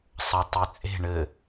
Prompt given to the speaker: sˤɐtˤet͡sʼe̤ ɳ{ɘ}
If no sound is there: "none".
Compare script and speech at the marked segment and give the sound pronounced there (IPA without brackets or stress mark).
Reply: ɘ